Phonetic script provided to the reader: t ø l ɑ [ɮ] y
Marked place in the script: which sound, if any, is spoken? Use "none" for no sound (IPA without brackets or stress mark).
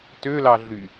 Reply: ɮ